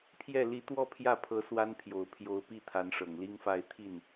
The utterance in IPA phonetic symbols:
pʰ j ɛ˥˩ l i˧˥ t̪ w ɔ˥˧ pʰ j ä˥˩ pʰ ɤ˧˥ s w a˥ n pʰ j o˨˩ ʊ̯ pʰ j o˧˥ ʊ̯ p i˥˩ t̪ʰ a˧˥ n ʂ ɤ˨˩ ŋ l i˥ ŋ f a˥˧ ɪ̯ t̪ʰ i˥˩ n

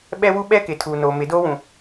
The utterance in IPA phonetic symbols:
ɓ ɛ˦ w u˦ ɓ ɛ˦ k ɪ˨ tʰ uː˨ n oː˨ m ɪ˨˦ d oː˦ w ũ˨

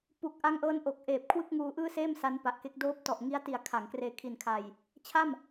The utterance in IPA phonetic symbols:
p u˨˩ k̚ ʔ a˦˥ ŋ ʔ ɤː˦˥ n ʔ o˨˩ k̚ ʔ eː˨˩ p̚ kʰ w ɯ˥˩ k̚ ŋ uː˧ ʔ ɯː˥˩ s eː˥˩ m s a˦˥ n p a˨˩ ʔ k e˦˥ k̚ d oː˦˥ p̚ t ɔ˨˩ ʔ ŋ i˦˥ a̯ t i˨˩ a̯ kʰ a˩˦ ŋ k r eː˧ kʰ i˨˩ n kʰ a˨˩ j | t͡ɕʰ a˥˩ m

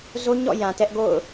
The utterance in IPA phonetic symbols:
z o˦ ɲ ɔ̰˦˨ j ã˨ t ɛ˦ ʔ ɡ o̰˦˨ ʊ̯

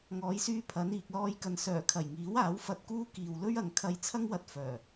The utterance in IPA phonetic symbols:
ŋ ɔː˨˧ j s yː˧ pʰ ɐ˨˧ n iː˨ k̚ l ɔː˧ j k ɐ˨ n s œː˨˩ kʰ ɐ˨˩ j ŋ iː˨˥ w aː˨˥ w f ɐ˧ t̚ k uː˥ k iː˨ w l ɵ˥ ɥ ɐ˨ ŋ kʰ ɐ˧ j t͡sʰ ɐ˥ ŋ w ɐ˧ t̚ f œː˨˩

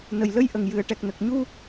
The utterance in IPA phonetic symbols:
n ə˨˩ j l ə˧ j ʔ ə˨˩˨ ŋ j ɨ˨˩˨ ə̯ ʈ ɛ˨˩ k̚ n ə˨˩ k̚ ɲ u˧

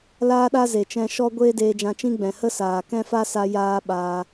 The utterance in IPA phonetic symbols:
l aː˦ ɗ a˦ z e˨ t͡ʃ ɛ̃˧ ʃ ɔ˦ ɡʷ eː˦ d eː˧ d͡ʒ ã˧ t͡ʃ ĩ˦ ɡ͡b ɛ̃˨ h ə˦ s aː˨ k ɛ̃˦ f a˦ s a˧ j aː˦ ɓ a˧

